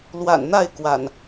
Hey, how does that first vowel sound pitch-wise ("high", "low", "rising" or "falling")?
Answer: low